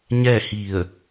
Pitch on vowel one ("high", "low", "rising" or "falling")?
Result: falling